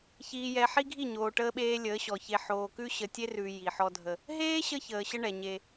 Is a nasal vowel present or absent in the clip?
absent